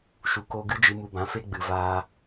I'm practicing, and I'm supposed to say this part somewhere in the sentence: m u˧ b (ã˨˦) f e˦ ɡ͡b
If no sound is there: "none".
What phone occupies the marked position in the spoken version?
ã˨˦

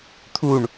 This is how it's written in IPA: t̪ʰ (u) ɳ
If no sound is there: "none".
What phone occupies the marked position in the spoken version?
u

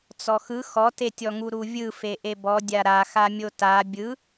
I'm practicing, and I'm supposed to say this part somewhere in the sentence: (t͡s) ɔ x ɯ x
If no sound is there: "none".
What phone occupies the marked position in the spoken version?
t͡s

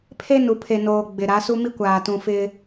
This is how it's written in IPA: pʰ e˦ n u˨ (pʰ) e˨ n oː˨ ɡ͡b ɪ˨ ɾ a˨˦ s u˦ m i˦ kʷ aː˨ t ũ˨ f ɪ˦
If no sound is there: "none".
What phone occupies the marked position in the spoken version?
pʰ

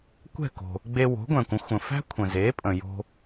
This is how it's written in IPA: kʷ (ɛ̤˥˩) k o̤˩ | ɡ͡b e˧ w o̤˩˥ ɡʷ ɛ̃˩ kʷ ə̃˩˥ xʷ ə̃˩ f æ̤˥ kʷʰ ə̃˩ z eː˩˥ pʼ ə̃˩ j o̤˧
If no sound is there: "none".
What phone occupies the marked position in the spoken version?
ɛ̤˥˩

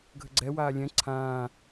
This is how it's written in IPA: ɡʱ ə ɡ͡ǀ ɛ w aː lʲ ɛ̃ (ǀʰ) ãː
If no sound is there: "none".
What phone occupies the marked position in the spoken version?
ǀʰ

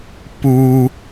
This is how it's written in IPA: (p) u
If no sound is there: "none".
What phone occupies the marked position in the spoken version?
p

